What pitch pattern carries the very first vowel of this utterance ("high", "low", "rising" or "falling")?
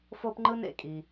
high